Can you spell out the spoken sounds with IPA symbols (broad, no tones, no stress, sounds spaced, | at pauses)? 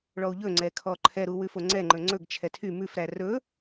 ɭ ɔ u̯ ʎ ɵ ŋ͡ǀ ɛ kʰ ɔ ǃʰ ɛ ɾ u w ʉ f o ŋ͡ǀ ɛ ŋ͡ǃ ɵ ŋ͡ǀ ɵ ɡ t͡ʃʰ ɛ tʰ y m ʉ f ɾ æ r ɵ